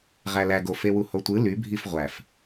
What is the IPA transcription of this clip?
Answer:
ʁ æ l æ ɡ o f e w u h o tʷ ɯ l y bʱ i f ʁʷ æ f

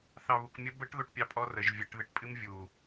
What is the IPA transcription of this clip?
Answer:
θ ɑ β u k mʲ ə b ə ʈ ð o ʈ pʲ ɑ pʼ ɔ r ə ʒ vʲ ə ʈ ð ɨ ʈ pʼ ɨ m vʲ u

